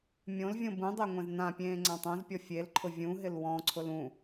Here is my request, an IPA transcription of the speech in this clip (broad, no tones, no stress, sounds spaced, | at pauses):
mʲ õ l vʲ õ b ũ dˤ e ŋʷ ɛ̃ z n ã pʲ ẽː ŋ͡ǀ ã tˤ õ z pʲ ɔ fʲ e l ǃʰ ʊ vʲ ũ ɦ ɪ l w ɔ̃ ǀʰ ʊ l ũ